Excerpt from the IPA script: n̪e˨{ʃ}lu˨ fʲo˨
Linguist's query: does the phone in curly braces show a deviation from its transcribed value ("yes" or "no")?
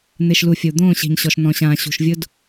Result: no